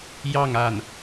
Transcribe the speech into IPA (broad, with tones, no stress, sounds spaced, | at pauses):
j ɑ˥˧ ŋ a˥˩ n